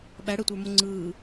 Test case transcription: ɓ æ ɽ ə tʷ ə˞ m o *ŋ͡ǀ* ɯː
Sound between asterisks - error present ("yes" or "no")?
no